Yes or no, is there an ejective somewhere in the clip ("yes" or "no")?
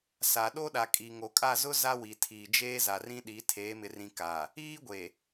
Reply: yes